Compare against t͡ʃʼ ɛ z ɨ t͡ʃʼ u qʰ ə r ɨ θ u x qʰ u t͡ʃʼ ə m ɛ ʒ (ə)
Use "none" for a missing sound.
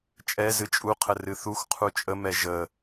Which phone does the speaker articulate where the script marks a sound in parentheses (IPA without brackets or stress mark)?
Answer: ə